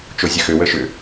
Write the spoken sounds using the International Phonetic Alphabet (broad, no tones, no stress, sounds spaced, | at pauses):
t͡ʃ o zʲ ə x ʏ w ə ʃ ʏ